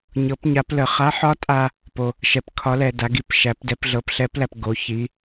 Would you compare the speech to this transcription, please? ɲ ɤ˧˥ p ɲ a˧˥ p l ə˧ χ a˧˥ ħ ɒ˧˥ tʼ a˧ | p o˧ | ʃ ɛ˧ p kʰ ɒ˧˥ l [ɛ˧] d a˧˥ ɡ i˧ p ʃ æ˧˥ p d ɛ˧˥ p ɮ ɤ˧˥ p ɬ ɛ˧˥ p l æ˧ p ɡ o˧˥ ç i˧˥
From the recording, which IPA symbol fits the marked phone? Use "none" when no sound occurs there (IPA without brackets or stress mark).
ɛ˧